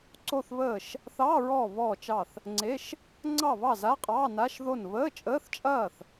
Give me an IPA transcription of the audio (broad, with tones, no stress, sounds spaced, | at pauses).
ǀ o˥˨ θ β əː˥˨ ʃ | θ ɑː˧˥˧ ɹ ɔː˥˨ β ɔː˥˨ t͡ʃ ɑ˥˨ θ | ŋ͡ǀ e˧˥˧ ʃ | ŋ͡ǀ ɑ˥˨ β ɑ˥˨ z a˧˥˧ qʼ ɑː˧˥˧ n a˧˥˧ ʃ ð o˥˨ n β əː˧˥˧ t͡ʃʼ əː˧˥˧ θ t͡ʃʼ ɐː˥˨ θ